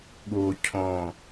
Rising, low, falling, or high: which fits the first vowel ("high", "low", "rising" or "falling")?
low